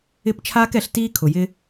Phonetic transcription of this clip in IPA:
ɪ˦˨pt͡ʃʰaː˦k ɛ˧ɬtiː˦ kʰʊ˨ jɪ˧

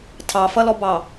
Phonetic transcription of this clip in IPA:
tʰɑfʌlɔbɑ

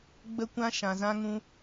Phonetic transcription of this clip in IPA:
ɡ͡bə˦kʷã˦ ʃã˧zã˦ŋũ˦

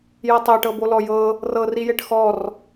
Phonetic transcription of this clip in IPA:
jɤtˤeʈɤbo lɔjɤ | rɤrijeʈ xɔr

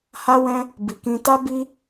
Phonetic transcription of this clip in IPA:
ha˦wɛ̃˦ | bi˨kĩ˧ta˦ bi˦

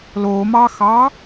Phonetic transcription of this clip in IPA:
lomɑxɑ

